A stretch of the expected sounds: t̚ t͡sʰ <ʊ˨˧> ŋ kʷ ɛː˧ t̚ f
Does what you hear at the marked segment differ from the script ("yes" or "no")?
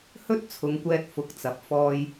no